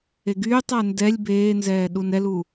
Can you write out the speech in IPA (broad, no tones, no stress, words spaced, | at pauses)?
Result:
eɡyːtˤa ndɛlʲ beːnzɛː ɗunɛlu